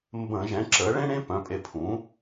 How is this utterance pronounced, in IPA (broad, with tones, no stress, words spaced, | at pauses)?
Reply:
mbə̃˧˩˧ʒɛ̃˩˥ ǁə˩˥ ɭẽ˥ ɽẽ˥pœ̃˩˥pʼe˧ pʰũ˩˥